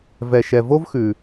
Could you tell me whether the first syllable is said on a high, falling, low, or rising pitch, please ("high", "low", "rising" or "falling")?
low